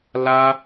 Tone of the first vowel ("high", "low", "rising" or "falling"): high